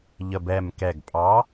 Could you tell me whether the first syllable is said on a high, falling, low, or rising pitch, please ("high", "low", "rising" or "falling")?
low